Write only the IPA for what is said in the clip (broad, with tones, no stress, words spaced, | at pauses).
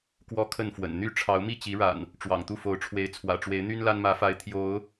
kwɔ˥˨kʰə˥˨nfwə̰˨˩n n̪y˦ ʈ͡ʂʰɑ˨˦ʊ̯mi˥˨t͡ɕi˨˦ɻa̰˨˩n | ʈ͡ʂwɑ̰˨˩ŋt̪u˥˨fo˨˦ʊ̯ʈ͡ʂʰwe˨˦ɪ̯ t͡sʰwä̰˨˩ʈ͡ʂwe˨˦ɪ̯ n̪y˦nla˦nmä˨˦fa˨˦ɪ̯ t̪ʰjo˨˦ʊ̯